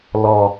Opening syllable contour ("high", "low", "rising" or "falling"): low